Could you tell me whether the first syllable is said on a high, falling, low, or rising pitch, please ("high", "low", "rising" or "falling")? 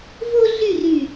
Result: high